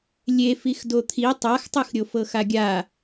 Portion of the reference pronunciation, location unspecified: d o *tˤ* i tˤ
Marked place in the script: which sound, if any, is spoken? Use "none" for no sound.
t̪ʰ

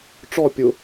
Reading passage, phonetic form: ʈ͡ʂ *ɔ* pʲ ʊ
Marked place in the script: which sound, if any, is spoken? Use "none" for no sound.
ɔ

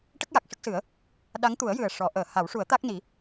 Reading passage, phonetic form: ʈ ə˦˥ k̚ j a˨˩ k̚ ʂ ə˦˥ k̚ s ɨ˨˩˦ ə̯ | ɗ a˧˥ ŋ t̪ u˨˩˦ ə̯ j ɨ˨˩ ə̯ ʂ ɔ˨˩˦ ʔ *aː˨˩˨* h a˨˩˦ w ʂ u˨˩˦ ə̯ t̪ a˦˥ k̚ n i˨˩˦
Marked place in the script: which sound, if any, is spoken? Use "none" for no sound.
əː˨˩˨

